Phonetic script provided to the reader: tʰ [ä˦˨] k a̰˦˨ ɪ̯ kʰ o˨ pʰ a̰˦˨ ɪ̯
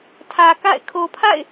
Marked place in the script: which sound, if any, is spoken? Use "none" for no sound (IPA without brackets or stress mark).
ä˨